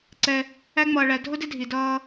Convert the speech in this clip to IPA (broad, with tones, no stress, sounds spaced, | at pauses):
ǀ ɛ˧ | æ˦ ŋ͡m ʌː˧ ɭ æ˧ dʱ ʊ˦ d ɪ˦ dʱ i˨ d ʌː˧